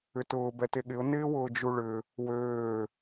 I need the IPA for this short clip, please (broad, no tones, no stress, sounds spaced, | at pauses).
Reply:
ʏ t ʊː b ɛ t e ɠ ɪ ʊ̯ n ɪː w ʊː d͡ʒ u ɭ ʏ | w øː